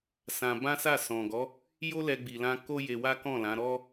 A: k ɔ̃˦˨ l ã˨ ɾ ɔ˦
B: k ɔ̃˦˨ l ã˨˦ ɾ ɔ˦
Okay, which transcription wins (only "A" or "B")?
B